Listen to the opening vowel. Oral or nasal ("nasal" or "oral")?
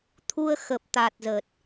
oral